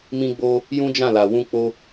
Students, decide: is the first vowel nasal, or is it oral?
nasal